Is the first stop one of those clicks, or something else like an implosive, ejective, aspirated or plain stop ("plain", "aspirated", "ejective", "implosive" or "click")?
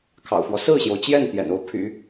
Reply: aspirated